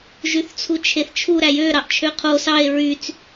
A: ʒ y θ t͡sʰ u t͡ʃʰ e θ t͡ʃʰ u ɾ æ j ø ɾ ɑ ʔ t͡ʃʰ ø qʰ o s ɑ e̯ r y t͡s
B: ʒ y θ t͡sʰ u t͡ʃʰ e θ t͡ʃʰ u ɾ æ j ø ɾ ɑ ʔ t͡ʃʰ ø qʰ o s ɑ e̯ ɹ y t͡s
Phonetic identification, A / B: B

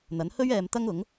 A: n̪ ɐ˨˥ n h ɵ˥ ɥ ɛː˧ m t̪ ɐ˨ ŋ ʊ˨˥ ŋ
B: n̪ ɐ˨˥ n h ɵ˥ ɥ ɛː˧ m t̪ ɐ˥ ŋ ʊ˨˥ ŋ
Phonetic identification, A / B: B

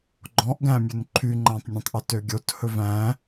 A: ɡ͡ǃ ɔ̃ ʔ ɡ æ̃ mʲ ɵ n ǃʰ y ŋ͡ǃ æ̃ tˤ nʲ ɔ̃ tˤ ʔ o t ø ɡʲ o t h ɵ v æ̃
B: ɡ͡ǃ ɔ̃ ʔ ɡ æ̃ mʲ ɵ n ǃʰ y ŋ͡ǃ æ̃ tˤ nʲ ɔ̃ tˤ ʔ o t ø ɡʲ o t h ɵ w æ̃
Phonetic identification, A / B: A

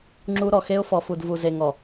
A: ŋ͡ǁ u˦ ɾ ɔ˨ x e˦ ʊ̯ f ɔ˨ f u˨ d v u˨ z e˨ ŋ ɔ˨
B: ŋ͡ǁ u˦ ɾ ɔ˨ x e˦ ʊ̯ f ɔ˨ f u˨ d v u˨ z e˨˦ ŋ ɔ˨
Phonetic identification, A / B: A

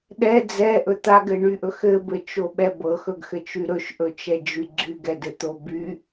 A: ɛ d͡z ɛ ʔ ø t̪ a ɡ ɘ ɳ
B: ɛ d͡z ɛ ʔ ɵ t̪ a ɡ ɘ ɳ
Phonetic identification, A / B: B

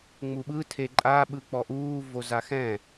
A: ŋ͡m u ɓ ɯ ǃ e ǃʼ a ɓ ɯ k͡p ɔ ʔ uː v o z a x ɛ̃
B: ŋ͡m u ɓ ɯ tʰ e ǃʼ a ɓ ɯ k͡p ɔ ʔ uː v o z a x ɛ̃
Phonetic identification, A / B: B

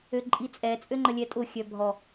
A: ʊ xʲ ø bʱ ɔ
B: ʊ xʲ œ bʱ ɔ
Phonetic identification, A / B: B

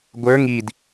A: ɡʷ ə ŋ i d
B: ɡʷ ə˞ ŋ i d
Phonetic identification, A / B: B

